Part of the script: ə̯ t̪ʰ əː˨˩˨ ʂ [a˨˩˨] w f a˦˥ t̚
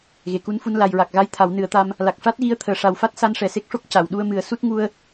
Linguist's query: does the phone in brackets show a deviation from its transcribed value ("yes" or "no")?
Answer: yes